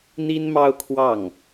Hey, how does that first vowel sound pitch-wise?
high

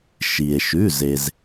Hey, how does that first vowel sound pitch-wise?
low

